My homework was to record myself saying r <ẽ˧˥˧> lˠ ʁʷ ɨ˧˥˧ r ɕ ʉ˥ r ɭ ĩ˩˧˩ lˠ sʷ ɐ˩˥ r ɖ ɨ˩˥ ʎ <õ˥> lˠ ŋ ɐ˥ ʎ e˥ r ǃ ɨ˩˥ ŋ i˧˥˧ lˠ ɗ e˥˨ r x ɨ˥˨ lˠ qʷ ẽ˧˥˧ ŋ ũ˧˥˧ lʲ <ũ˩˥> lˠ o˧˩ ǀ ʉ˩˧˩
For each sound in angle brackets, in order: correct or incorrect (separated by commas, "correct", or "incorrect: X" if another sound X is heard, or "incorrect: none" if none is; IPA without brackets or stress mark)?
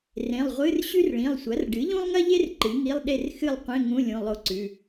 incorrect: ẽ˩˧˩, incorrect: ũ˥, incorrect: ũ˩˧˩